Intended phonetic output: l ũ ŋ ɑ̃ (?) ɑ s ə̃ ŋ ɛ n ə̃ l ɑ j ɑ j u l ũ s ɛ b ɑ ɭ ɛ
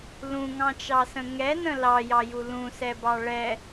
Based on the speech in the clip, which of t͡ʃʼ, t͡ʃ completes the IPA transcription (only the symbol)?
t͡ʃ